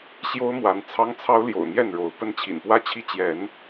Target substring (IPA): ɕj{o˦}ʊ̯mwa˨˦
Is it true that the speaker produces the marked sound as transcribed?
yes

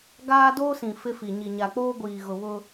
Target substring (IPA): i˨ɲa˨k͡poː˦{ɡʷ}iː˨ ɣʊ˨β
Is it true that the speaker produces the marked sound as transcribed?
yes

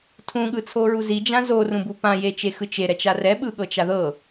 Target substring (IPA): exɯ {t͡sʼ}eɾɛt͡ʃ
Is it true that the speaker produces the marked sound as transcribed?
no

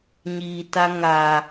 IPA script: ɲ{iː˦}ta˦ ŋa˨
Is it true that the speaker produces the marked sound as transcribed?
no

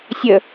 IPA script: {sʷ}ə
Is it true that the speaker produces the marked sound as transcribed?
no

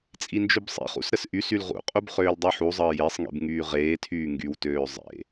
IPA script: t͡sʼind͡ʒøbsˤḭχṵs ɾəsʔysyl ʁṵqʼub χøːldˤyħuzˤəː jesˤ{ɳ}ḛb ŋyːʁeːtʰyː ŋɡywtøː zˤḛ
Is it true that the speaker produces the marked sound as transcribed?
no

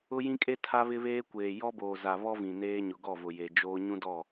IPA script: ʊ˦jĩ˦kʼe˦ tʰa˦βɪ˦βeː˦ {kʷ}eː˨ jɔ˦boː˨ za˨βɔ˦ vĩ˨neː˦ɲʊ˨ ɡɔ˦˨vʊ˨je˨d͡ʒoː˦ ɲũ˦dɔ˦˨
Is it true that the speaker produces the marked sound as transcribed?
yes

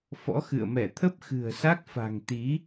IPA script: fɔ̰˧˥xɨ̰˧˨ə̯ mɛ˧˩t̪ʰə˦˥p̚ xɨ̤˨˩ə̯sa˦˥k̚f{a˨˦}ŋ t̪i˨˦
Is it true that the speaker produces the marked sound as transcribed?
no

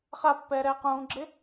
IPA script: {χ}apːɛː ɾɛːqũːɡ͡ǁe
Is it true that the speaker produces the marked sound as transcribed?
yes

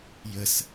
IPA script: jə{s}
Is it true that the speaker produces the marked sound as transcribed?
yes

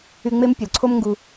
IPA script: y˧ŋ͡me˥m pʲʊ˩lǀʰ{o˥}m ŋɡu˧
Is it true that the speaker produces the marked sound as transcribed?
yes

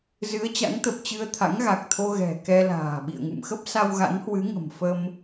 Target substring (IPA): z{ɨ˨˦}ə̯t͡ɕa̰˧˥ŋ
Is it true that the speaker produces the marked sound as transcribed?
yes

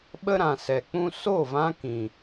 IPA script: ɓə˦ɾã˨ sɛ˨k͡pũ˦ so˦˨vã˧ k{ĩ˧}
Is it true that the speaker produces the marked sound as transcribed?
no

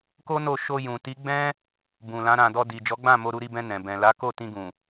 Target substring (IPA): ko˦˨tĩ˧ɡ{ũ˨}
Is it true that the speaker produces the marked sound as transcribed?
yes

